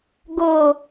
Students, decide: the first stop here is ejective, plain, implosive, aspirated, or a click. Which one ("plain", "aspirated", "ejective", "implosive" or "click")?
plain